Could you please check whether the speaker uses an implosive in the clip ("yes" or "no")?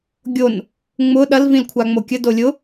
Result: yes